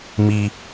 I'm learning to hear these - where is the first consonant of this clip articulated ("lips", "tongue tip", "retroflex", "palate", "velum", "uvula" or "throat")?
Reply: lips